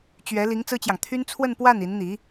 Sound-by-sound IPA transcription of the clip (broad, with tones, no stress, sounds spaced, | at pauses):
t͡ɕ ɥ ɛ˧˥ l i˧˥ ŋ t͡s ɹ̩˥ t͡ɕ j ɑ˨ ŋ t̪ʰ y˥ n t͡sʰ w ə˥˧ n p w a˥˩ n i˧˥ n n̪ i˧˥